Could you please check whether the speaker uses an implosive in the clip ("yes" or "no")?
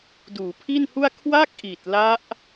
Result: no